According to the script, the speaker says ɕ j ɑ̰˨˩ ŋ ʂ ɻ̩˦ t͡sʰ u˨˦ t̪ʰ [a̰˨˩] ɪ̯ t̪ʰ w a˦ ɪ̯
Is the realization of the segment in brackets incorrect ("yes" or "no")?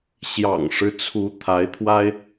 yes